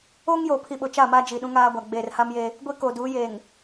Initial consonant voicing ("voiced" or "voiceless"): voiced